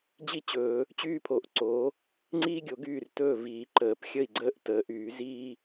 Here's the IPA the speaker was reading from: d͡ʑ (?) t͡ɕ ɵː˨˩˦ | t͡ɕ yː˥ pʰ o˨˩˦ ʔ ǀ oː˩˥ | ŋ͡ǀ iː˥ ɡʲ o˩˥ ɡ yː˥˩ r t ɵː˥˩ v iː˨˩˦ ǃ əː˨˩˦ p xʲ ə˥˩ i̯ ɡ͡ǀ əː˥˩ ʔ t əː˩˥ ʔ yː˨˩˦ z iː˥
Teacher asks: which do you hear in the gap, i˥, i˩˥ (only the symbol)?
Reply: i˥